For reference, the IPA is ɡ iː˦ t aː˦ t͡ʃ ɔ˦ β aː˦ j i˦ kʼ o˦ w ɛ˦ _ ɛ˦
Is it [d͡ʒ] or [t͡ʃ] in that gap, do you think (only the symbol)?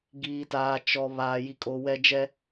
d͡ʒ